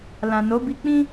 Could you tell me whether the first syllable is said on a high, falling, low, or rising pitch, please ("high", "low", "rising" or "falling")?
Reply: low